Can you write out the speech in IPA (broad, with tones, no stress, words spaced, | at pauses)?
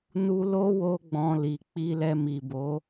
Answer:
nu˧lo˦ wo˦ɡ͡bɔ̃˧ li˨k͡pi˧lɛ˧ mi˨bo˨˦